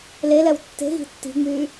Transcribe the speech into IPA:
l e l ɛ w tː e̤ ɣ i̤ tː i̤ ŋ͡m yː

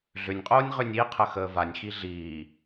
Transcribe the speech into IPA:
ɮ ʏ nʲ qʼ oː nʲ ʁ ʏ nʲ i qʰ ə x əː v a nʲ x i ɮ iː

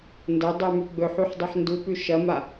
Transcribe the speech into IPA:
n d ɐ dˤ ʉ m ʉ ɡ͡b ɵ ħ u ħ dˤ ʉ ħ n d u p ʉ ʃ ɐ m a

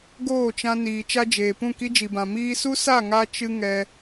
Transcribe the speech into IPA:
ɡ oː˦˨ t͡ʃ ã˧ n iː˨ t͡ʃ a˦ d͡ʒ eː˨ p ũ˦˨ k i˦ d͡ʒ i˨ b ã˨ m iː˧ s u˦ s a˦˨ ŋ a˧ t͡ʃ ɨ˧ ŋ ɛ˧

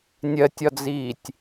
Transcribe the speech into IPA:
nʲ ɜ tʲ ɒ d͡z iː tʲ

